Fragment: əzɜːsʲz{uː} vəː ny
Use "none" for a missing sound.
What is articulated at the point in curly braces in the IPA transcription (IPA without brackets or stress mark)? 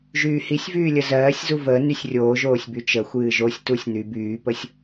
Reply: u